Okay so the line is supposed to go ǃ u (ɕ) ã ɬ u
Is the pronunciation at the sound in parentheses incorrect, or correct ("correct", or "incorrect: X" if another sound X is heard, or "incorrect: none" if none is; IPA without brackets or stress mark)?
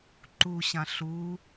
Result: correct